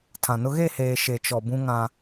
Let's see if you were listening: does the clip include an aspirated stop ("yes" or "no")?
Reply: yes